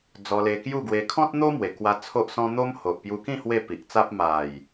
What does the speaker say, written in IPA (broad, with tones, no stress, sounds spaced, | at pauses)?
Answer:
d͡z ɔ˧ l e˧ k j u˥˧ ɡ w e˧ kʰ ɔ̃˦ t̚ n̪ o˦ m w e˨˩ k w a˧ t͡sʰ o˦ ʔ s ɔ̃˦ n̪ o˦ m h o˨ ʔ p j u˧ k ĩ˥˧ h w e˥˧ p i˨ ʔ t͡s a˦ p̚ m a˨˩ j